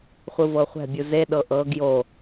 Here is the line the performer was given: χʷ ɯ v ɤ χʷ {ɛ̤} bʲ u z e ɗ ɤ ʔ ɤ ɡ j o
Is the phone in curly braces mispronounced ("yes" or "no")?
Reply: no